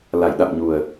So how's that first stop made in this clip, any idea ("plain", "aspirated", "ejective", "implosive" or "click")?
implosive